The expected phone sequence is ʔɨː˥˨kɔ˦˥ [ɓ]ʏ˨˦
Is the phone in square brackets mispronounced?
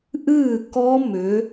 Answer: yes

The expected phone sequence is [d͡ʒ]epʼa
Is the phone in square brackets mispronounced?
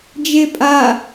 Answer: no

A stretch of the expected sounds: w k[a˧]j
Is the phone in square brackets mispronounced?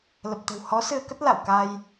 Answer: no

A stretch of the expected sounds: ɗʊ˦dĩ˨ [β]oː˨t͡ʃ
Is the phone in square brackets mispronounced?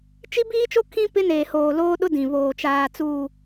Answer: no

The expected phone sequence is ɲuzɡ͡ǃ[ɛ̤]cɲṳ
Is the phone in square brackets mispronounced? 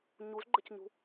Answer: yes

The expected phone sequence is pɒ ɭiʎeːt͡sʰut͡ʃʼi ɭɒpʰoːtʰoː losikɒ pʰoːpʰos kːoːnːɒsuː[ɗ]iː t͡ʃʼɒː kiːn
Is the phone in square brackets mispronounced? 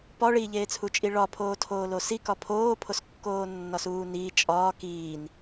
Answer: yes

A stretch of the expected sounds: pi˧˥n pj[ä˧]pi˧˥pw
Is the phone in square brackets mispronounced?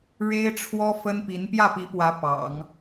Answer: yes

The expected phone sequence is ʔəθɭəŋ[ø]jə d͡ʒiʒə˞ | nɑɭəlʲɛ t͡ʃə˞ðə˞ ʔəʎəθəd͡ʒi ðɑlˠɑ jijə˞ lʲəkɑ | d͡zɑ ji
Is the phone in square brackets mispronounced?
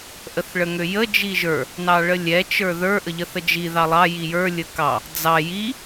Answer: no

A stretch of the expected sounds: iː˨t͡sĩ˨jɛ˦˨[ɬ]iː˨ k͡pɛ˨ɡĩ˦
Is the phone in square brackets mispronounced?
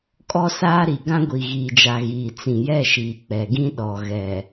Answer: yes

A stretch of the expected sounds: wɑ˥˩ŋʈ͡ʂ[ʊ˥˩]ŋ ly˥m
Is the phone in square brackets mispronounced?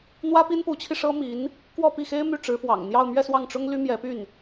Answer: yes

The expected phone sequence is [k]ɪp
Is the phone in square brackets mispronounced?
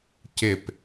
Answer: yes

